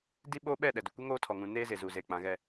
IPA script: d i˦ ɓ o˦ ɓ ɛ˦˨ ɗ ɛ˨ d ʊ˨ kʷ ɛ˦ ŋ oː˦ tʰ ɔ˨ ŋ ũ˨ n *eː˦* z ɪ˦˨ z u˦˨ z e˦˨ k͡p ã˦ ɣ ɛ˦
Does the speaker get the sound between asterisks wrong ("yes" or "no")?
no